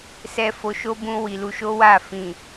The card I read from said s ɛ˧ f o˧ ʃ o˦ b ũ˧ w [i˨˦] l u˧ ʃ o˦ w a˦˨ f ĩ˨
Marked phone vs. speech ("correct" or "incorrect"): incorrect